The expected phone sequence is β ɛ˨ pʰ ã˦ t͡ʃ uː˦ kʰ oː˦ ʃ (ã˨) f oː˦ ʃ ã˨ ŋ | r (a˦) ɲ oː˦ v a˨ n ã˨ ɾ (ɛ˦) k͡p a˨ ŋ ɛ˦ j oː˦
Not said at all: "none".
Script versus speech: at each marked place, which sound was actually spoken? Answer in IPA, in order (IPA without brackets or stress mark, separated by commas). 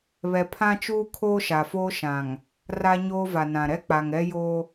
a˨, a˦, ɛ˦